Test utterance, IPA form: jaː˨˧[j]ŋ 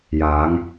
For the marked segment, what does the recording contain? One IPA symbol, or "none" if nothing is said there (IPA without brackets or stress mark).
none